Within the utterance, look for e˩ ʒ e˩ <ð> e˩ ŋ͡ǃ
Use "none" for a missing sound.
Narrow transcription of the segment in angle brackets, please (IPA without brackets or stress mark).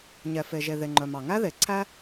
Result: ð